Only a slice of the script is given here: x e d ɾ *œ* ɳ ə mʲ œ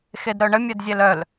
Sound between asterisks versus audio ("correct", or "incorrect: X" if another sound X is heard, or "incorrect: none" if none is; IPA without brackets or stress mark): correct